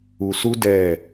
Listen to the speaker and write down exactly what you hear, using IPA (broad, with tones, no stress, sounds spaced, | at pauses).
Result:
u˧ s u˦ d ɛ˦˨